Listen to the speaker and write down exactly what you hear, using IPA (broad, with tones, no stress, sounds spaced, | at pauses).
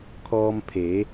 kʰ ɔː˧ m pʰ e˩˧